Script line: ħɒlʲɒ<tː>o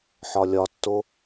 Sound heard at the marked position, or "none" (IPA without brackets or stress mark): tː